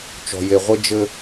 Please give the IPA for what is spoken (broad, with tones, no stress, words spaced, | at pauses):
t͡ʃɔ̤˨je˨ʁʷɘ˦ d͡ʒɘ˦